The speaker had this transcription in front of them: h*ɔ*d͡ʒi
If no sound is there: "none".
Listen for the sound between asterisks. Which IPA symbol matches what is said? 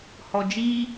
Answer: ɔ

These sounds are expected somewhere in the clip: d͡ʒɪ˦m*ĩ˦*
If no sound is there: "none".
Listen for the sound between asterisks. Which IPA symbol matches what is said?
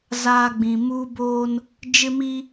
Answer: i˦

